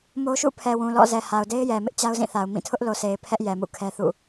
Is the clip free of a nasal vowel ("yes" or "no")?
no